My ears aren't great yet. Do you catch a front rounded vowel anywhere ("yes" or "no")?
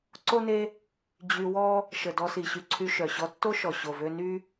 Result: yes